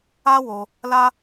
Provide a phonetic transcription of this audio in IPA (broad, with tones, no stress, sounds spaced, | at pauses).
a˦ w o˧ | l a˦